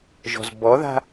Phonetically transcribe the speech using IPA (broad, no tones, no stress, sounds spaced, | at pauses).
ʒ ɔ̤ z b ɔ ð a̤